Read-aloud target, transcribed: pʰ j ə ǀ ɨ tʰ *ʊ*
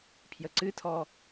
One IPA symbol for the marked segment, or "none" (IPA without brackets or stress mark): ɔ